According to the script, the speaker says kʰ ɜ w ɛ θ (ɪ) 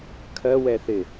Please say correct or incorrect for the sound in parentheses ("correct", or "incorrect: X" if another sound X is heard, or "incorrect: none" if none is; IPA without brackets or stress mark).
correct